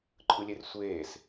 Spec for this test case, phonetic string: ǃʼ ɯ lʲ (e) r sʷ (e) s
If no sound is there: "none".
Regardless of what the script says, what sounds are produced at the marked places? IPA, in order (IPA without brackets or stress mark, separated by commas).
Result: e, eː